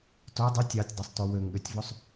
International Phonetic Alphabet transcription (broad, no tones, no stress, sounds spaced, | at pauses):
t o dˤ ʉ tʲ ɑ tʲ dˤ u sˤ t o w ø ŋ ɠ ø tʲ v o sˤ